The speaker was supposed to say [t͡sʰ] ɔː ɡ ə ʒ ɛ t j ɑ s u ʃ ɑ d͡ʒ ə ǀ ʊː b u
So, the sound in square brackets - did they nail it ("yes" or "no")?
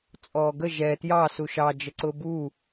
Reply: no